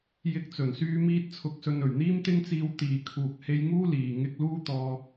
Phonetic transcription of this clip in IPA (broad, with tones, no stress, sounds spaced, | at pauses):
j ɪ˧ k̚ t͡s ɵ˨˩ n s yː˧ m iː˥ t̚ t͡sʰ ʊ˧ k̚ s ɵ˧ n ɵ˨˩ ɥ n̪ iː˥ m t̪ ɪ˥ ŋ t͡s iː˧ w t̪ iː˨ kʰ uː˨ k̚ h e˧ j ŋ uː˥ l iː˨˩ ŋ ɪ˧ k̚ l uː˥ t̪ ɔː˧